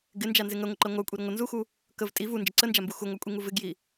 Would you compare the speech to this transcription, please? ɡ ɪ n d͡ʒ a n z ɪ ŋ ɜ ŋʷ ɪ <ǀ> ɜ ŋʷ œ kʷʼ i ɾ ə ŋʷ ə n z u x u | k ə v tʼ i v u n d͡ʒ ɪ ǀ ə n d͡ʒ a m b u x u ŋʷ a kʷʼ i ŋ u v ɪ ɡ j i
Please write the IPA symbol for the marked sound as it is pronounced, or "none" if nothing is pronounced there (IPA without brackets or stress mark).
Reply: ǃ